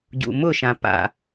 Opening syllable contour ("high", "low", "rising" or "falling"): low